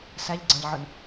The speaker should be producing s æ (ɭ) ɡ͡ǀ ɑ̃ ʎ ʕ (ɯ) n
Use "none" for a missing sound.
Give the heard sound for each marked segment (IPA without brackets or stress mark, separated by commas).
ʎ, ɯ